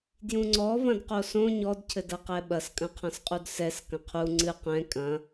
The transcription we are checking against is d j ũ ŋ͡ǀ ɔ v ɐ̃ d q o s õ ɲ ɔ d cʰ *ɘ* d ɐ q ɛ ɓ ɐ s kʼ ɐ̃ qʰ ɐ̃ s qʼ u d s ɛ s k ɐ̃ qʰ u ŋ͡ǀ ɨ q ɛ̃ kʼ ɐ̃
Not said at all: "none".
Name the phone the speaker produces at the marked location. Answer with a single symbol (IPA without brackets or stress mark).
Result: ɘ